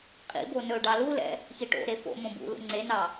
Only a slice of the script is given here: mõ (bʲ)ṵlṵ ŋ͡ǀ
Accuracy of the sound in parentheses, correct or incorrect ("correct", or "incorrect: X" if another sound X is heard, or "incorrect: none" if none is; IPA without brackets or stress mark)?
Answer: incorrect: b